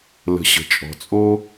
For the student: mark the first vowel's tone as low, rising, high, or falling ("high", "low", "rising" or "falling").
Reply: low